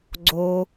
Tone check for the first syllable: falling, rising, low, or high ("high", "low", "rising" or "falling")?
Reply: high